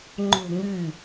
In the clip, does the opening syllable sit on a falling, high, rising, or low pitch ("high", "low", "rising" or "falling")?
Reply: falling